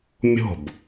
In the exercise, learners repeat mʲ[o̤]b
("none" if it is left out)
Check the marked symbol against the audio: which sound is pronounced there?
o̤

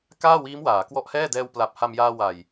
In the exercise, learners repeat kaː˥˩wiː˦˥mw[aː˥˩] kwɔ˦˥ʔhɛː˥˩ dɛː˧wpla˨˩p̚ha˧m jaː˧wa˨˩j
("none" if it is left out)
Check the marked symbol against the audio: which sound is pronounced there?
aː˩˦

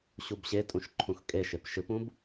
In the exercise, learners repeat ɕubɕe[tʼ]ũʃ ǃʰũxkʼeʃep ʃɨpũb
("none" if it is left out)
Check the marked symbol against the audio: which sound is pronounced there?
tʼ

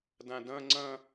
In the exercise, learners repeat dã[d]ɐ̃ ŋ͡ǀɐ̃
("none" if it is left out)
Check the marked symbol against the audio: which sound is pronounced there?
d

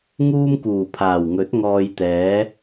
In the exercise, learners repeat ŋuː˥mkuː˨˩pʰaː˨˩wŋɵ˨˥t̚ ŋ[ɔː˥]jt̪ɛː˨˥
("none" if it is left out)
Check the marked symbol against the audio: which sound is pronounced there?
ɔː˧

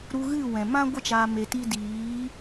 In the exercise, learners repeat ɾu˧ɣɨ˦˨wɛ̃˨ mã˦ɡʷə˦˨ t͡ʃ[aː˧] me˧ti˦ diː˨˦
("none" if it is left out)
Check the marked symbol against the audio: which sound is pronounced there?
aː˧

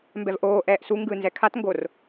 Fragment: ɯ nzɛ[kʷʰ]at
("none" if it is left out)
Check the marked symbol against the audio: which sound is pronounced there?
kʰ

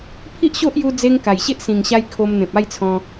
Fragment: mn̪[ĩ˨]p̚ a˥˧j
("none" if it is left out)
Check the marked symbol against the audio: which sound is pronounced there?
ẽ˨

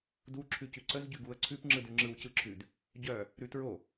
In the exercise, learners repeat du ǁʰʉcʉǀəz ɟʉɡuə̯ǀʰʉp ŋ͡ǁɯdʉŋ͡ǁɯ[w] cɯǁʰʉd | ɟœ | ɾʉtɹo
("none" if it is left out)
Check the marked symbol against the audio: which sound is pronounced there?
w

